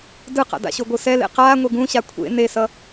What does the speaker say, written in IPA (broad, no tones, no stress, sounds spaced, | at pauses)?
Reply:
d ɯ q a̰ d a̰ ɕ o ɡʷ ɯ s ɛ l ḛ q aː ŋʷ e ɡ ũ ɕ a kʷʰ ḛ n e s ʌ